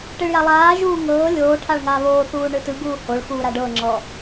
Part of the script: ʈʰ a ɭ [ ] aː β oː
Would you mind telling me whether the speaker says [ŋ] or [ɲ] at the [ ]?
ŋ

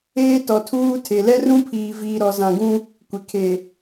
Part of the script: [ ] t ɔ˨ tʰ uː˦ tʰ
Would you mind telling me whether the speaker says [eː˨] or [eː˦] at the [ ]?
eː˦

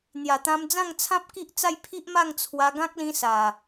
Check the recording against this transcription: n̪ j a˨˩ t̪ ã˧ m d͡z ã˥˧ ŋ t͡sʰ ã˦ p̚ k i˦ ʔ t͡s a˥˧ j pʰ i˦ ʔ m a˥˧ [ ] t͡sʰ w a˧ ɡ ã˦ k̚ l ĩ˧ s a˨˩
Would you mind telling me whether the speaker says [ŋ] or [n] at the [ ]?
ŋ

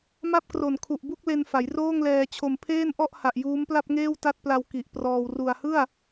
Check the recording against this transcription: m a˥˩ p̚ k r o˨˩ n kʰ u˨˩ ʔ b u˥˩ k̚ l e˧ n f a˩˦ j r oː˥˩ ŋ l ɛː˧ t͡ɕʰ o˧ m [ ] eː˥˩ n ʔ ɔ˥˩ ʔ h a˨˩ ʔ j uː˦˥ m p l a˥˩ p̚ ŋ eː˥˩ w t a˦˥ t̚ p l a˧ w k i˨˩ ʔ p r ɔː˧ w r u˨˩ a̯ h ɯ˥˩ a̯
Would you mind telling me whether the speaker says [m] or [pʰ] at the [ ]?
pʰ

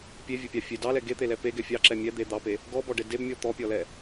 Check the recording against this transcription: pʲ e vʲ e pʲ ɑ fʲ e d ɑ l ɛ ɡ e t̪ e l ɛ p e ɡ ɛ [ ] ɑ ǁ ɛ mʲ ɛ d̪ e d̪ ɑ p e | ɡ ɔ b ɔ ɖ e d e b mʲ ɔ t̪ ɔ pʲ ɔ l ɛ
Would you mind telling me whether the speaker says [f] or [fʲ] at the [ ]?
fʲ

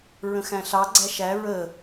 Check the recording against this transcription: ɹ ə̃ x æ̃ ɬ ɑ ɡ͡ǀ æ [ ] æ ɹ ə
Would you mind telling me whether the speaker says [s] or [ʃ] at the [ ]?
ʃ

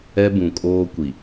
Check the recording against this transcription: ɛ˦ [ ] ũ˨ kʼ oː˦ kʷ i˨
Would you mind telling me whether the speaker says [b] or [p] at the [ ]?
b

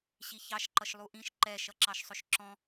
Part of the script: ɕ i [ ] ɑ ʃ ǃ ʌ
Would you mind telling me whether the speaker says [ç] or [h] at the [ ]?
ç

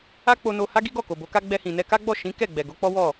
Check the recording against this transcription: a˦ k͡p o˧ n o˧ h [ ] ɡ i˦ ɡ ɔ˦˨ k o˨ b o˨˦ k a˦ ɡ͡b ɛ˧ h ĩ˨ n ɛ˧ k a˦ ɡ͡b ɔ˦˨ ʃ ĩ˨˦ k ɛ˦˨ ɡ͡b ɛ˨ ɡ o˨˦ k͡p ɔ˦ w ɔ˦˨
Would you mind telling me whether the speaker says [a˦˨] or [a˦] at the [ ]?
a˦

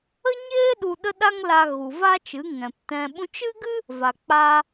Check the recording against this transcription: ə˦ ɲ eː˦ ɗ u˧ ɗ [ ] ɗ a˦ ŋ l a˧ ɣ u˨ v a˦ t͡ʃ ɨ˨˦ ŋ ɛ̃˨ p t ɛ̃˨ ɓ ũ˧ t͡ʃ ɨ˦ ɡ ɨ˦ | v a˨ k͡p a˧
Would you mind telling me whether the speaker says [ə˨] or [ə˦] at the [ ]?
ə˦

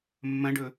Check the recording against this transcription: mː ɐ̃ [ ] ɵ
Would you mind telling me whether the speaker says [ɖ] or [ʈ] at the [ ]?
ɖ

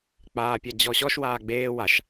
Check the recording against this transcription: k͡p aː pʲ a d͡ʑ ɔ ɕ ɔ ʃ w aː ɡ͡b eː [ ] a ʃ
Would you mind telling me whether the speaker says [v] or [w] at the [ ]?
w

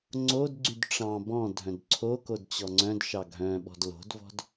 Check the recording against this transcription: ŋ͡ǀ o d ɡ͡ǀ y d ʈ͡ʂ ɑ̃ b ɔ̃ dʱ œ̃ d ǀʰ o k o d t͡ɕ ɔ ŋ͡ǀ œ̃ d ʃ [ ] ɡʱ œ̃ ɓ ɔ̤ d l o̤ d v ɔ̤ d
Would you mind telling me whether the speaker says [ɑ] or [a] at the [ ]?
ɑ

